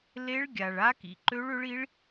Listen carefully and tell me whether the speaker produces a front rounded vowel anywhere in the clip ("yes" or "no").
yes